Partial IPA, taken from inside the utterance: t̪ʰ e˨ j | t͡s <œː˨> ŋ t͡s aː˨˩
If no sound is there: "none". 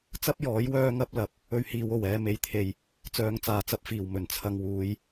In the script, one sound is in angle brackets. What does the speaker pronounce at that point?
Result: œː˨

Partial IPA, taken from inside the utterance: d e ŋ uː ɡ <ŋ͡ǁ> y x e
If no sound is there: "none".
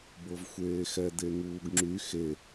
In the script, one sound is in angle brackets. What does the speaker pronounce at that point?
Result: ŋ͡ǁ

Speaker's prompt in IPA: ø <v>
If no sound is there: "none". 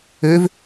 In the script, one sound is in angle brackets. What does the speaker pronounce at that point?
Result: v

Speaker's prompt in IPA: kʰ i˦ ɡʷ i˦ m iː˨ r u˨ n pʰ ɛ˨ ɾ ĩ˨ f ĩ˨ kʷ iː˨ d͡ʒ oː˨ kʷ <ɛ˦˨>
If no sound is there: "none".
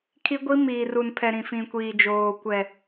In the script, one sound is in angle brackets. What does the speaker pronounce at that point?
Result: ɛ˨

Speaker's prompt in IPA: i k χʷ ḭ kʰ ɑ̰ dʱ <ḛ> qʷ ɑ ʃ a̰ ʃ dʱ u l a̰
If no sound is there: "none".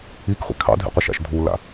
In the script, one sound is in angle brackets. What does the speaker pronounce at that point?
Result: ḭ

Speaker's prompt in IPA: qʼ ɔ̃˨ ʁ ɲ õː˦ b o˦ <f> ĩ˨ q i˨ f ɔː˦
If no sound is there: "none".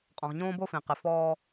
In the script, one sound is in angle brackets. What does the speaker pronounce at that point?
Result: f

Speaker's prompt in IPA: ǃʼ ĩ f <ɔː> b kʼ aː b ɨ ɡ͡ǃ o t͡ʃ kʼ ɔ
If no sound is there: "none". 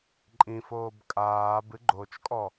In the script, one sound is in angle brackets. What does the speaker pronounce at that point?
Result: oː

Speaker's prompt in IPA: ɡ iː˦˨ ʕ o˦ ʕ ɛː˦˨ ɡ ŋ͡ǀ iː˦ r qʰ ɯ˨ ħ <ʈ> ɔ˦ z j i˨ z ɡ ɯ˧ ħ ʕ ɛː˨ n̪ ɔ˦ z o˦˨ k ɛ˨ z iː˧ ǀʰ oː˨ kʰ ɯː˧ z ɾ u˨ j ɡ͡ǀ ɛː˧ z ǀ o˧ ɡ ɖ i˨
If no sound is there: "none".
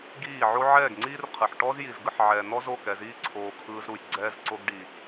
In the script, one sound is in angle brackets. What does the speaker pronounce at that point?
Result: ʈ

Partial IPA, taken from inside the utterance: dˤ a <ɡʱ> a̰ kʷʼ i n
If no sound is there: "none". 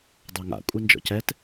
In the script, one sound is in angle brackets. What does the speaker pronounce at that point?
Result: ŋ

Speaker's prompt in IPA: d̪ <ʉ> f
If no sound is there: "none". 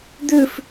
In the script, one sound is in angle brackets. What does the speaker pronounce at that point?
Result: ʉ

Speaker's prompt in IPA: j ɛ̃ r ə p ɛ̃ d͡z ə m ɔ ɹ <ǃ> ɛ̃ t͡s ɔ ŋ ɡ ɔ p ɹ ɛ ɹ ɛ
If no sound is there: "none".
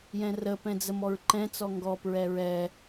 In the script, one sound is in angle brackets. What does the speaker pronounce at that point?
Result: ǃ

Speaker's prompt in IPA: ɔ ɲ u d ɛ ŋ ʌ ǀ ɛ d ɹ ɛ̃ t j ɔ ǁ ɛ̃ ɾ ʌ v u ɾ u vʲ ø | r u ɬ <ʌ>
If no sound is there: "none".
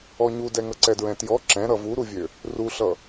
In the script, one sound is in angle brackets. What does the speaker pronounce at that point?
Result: ʌ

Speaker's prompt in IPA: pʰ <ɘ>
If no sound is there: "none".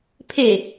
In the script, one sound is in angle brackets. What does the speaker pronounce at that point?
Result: e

